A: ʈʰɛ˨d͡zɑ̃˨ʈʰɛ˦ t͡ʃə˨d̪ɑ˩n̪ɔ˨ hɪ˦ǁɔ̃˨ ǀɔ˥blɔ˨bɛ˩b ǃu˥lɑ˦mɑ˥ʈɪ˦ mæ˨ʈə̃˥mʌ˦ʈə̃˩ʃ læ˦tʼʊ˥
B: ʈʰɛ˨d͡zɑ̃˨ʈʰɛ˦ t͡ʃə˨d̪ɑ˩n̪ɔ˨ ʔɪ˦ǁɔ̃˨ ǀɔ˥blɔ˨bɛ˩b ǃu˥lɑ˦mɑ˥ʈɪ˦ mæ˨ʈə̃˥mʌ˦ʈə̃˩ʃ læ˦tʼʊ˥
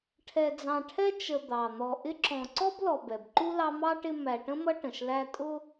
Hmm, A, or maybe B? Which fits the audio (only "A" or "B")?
B